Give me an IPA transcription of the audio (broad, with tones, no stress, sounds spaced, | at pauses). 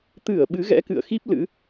t̪ ɨ˧˩ ə̯ ɓ ɨ˨˦ ɣ ɛ̰˧˥ k ɨ̰˧˨ ə̯ x i˦˥ p̚ l ɨ̰˧˥